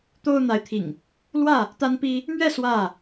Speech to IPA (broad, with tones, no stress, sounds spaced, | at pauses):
t̪ o˦ ʊ̯ n̪ a˨˦ ɪ̯ t̪ʰ ḭ˨˩ ŋ | l w ä˥˨ | t̪ a˦ n p i˦ | m ɥ ɛ˥˨ s w ä˥˨